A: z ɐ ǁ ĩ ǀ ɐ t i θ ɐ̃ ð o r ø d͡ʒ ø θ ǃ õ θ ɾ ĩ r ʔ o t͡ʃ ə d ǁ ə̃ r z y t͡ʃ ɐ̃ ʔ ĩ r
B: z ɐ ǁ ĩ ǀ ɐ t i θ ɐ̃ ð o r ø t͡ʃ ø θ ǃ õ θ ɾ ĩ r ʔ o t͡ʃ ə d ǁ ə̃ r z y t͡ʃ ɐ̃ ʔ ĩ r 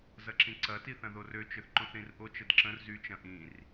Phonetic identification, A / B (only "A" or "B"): B